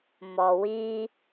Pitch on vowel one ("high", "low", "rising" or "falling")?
low